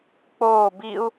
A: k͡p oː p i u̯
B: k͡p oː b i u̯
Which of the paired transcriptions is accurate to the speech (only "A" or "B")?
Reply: B